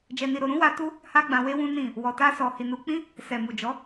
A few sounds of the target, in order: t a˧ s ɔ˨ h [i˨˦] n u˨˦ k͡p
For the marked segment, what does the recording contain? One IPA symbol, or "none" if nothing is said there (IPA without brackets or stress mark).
i˨